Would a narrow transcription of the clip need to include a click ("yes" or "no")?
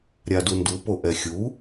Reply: no